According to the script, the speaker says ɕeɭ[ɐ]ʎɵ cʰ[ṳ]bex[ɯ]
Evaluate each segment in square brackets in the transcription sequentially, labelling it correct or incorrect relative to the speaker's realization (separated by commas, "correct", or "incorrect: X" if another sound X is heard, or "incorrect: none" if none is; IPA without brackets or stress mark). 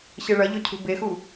correct, correct, incorrect: u